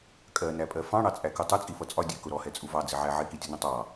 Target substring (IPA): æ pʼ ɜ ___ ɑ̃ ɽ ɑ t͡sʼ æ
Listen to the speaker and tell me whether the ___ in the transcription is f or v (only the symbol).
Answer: f